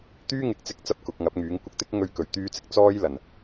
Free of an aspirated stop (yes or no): yes